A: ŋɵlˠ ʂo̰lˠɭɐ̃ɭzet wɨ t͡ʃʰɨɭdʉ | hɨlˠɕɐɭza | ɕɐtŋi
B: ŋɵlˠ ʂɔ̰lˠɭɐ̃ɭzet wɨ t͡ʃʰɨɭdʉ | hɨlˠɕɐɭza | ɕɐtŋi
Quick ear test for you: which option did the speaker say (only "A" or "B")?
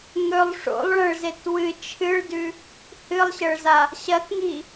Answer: A